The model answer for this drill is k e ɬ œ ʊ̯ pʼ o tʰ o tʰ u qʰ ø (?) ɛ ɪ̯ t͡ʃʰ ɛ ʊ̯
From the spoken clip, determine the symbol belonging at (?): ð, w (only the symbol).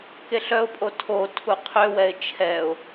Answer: w